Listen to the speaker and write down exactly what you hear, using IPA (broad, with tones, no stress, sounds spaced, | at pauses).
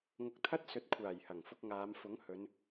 ŋ ʊ˧ k̚ t̪ʰ ɐ˥ t̚ s ɵ˨˥ t̚ kʷʰ aː˨˩ j h ɐ˨˩ ŋ f ʊ˧ k̚ ŋ aː˨˧ m f ʊ˨˥ ŋ h ɵ˨˧ n